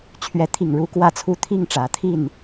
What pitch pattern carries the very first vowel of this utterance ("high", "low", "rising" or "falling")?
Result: rising